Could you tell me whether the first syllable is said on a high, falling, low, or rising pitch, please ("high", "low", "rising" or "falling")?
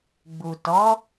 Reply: low